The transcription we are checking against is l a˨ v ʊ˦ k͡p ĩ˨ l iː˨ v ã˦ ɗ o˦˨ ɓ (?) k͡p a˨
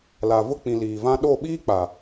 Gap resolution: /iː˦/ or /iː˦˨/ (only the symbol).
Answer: iː˦